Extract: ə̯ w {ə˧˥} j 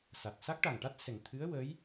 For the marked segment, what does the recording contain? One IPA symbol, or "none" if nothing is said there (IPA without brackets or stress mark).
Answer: ə˧˥